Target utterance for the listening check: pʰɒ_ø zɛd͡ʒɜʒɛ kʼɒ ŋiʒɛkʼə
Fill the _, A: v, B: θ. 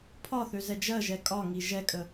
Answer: B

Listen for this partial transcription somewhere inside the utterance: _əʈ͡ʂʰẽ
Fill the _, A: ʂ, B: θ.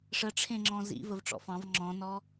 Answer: A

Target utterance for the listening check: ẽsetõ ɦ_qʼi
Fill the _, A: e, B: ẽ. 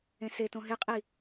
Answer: A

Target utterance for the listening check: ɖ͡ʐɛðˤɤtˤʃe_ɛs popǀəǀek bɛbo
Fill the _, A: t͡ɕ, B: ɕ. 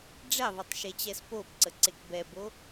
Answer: A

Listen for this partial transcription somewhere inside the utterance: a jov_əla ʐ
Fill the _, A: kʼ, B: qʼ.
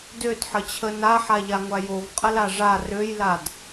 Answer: B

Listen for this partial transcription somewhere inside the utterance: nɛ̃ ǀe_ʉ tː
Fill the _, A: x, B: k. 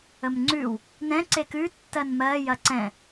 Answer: B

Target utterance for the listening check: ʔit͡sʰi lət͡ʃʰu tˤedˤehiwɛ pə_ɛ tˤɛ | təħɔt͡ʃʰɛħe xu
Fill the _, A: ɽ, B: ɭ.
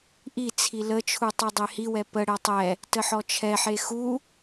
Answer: A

